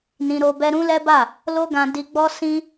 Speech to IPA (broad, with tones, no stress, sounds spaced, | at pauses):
n ĩ˧ ɾ o˧ b ɛ˦ ɾ ũ˦ l ɛ˦ b a˦˨ | l o˦ ɡ ã˧ d i˧ ɡ͡b ɔ˦ s ĩ˦